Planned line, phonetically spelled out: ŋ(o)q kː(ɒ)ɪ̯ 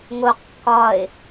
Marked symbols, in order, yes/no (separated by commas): yes, yes